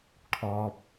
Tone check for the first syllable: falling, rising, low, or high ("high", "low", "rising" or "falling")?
low